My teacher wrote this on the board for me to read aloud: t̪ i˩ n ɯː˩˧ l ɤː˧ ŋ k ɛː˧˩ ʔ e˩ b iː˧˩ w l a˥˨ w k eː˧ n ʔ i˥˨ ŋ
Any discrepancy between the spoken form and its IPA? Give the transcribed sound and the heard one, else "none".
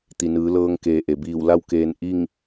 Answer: ɛː˧˩ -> eː˧˩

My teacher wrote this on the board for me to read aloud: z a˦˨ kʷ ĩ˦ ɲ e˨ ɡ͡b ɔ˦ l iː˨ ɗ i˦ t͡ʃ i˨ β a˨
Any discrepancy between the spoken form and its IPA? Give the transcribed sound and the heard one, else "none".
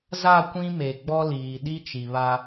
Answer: ɲ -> m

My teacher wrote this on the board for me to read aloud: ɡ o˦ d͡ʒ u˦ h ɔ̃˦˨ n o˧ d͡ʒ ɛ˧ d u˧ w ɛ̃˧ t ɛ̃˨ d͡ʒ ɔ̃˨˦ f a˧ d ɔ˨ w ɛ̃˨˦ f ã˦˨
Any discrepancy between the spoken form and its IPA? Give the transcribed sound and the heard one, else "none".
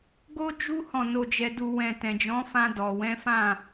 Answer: a˧ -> ã˧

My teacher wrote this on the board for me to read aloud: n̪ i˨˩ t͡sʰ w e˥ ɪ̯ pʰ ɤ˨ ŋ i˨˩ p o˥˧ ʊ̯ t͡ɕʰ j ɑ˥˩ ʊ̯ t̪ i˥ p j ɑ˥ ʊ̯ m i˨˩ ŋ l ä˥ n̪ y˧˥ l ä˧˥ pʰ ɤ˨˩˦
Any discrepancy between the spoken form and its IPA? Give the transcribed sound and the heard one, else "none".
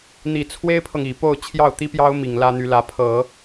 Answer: none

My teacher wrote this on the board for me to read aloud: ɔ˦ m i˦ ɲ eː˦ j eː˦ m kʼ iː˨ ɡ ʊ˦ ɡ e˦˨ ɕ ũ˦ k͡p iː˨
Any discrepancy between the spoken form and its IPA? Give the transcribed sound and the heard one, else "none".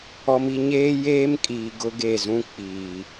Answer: ɕ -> z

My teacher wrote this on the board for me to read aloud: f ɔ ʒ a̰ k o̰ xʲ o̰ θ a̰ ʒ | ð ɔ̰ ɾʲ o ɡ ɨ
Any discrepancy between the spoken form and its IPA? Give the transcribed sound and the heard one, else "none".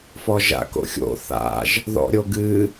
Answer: none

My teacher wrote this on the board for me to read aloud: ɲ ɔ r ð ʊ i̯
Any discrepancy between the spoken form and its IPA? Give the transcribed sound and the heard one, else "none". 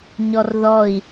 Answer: ʊ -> ɔ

